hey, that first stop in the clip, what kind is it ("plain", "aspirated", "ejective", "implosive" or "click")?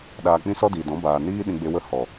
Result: implosive